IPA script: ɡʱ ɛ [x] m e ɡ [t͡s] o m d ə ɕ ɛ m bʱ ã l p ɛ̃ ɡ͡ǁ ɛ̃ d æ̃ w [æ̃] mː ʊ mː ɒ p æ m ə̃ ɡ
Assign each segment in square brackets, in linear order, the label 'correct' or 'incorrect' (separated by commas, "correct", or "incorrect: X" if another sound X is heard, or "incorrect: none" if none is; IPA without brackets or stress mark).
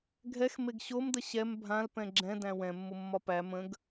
correct, incorrect: ɕ, incorrect: ɛ̃